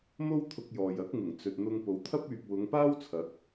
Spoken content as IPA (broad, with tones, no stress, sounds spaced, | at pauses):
m o˥ w t̪ʰ ʊ˧ k̚ j ɔː˨ j ɐ˨˥ k̚ ŋ ɪ˨˩ ŋ t͡s ɵ˨ t̚ n̪ ʊ˧ ŋ p o˨˧ w t̪ʰ ɐ˥ p̚ yː˨ p̚ w ʊ˨˧ ŋ p aː˥ w t͡sʰ ɐ˨˥ k̚